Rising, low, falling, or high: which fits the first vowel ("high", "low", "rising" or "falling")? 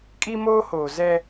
high